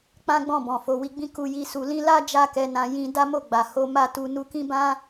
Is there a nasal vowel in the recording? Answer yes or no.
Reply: yes